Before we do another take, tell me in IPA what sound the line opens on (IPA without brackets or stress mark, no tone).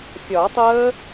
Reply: fʲ